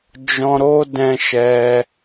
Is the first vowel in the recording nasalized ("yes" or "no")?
yes